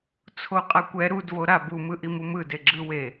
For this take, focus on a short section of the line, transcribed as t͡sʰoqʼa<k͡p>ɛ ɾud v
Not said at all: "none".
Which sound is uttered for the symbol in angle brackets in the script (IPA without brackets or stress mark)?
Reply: kʷ